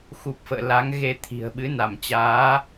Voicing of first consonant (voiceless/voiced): voiceless